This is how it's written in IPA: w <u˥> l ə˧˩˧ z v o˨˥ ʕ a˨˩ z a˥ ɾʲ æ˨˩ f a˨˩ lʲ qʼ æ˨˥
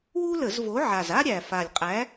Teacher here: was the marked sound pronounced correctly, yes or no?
yes